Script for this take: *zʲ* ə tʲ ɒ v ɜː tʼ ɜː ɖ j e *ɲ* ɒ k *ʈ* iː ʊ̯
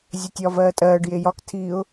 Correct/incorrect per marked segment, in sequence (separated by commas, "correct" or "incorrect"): correct, incorrect, incorrect